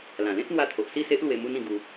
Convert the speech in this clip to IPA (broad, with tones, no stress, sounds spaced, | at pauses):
l ã˨˩ l ẽ˦ t̚ n̪ w a˧ t̪ʰ o˨ ʔ s i˥˧ s e˦ ʔ l w e˧ m u˦ n ĩ˧ ɡ u˧